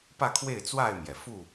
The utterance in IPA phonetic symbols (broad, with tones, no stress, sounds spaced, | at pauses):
p ä˥˨ kʰ w e˥˨ ɪ̯ t͡s w a˥˨ ɪ̯ m j ɛ˩ f u˥˨